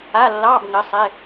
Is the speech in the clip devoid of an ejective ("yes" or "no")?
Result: yes